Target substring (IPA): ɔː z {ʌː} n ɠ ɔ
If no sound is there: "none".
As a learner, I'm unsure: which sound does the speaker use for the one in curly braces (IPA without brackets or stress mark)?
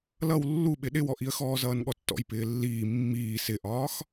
ʌː